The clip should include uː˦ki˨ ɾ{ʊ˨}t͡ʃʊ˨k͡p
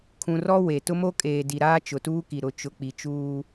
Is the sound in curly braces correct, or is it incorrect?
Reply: correct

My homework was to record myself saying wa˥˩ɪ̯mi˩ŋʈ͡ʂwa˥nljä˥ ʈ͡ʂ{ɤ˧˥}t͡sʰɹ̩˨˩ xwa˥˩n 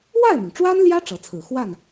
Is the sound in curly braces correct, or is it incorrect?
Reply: correct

